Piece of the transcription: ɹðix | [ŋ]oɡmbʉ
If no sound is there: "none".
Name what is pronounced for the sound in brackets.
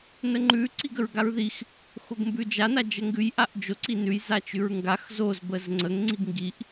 x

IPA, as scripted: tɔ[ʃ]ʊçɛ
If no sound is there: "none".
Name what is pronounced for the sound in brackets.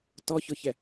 ç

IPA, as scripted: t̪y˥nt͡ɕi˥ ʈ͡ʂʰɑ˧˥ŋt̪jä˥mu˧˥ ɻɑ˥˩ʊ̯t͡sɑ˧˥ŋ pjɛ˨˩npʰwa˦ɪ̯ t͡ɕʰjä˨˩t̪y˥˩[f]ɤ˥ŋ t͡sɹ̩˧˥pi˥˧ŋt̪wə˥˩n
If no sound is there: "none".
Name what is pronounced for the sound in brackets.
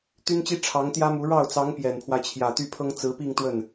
pʰ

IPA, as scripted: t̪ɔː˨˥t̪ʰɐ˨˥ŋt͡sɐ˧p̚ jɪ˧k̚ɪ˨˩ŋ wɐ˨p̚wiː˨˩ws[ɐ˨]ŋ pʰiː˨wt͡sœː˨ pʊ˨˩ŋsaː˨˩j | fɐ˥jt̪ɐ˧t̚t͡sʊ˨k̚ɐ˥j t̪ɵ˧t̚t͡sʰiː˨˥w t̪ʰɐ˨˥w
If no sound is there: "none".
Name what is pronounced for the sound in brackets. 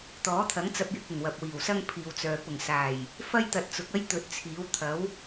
ɐ˥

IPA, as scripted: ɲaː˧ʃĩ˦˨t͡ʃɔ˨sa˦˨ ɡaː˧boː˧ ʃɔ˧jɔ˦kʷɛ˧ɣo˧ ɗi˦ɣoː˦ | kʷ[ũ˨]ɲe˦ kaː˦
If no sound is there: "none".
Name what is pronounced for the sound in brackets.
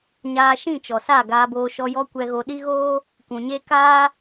ũ˨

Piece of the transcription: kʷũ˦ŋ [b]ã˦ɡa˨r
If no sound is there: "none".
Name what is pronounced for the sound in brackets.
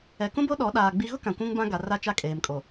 b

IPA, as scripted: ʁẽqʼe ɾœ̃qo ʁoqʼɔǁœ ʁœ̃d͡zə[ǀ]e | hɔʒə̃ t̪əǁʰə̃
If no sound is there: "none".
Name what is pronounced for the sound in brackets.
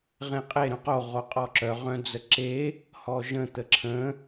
ǁ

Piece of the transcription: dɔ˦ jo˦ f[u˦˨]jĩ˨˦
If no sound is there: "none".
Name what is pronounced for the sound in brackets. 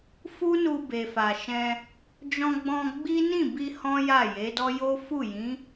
u˦˨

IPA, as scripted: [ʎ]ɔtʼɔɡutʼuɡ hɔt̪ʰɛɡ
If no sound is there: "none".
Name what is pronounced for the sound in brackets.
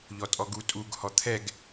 ʎ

